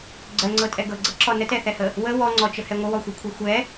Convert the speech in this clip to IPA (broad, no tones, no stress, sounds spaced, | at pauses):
ɡ͡ǀ ɜ ŋ͡ǀ ɤ tʼ ɛ ɡ ɤ ɡ͡ǀ ɤ ǁ ɔ n ə t ɛ θ ɛ h ə | w ə w ɔ ŋ͡ǀ ɔ t͡ʃ ə h ɛ ŋʷ ə w ɔ xʷ ɤ kʷʰ ɤ xʷ ɛ